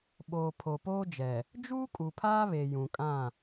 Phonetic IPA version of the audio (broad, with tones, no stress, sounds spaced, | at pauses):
ɓ oː˨ pʰ o˨ p oː˦ d͡ʒ ɛ˨ | d͡ʒ uː˦ kʼ u˨ pʰ aː˦ β e˨ j ũ˨ kʼ ã˦˨